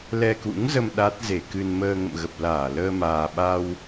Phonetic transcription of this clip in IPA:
l ɛ˧ k ṵ˧˥ ŋ z ə˧ m ɗ a˦˥ t̚ z e˧˩ k ɨ˧ n m əː˧ ŋ ə̰˧˨ m ɣ ə˨˩ p̚ l aː˧˩ l əː˧ m aː˨˩ ɓ a˧ w

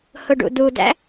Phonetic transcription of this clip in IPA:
h ʊ ɖ ṵ d u d æ̰

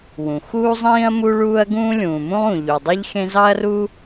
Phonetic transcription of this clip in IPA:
w ũ˩ x uː˥ zˤ ĩː˥ ɐ̯ m u˥ ɭ uː˥ ɐ̯ ɡ ũː˥ lʲ ũː˩ m ũ˥ lˠ ũ˩ ʎ u˩ dˤ i˥ ʎ x ẽ˥ z ɑ˥ ɐ̯ r u˥

